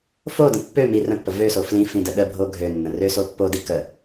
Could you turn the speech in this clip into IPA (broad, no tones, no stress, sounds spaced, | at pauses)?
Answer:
f o d ə̃ pː ø m i r ə̃ pː ə v ø s o f l ĩ f ĩ d ə ɗ ə bʱ o ɡʱ ø nː ə̃ r ø s o pː o d i k ə